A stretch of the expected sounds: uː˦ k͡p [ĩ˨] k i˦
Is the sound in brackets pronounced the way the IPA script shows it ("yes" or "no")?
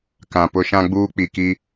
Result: no